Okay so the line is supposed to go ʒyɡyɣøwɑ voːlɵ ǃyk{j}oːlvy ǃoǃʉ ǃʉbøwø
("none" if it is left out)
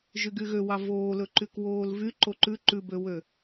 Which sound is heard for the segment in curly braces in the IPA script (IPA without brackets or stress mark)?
w